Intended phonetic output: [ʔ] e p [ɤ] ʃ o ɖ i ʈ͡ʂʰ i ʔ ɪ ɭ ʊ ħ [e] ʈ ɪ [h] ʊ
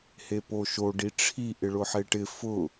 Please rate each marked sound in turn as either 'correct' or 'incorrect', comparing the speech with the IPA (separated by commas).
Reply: incorrect, incorrect, correct, incorrect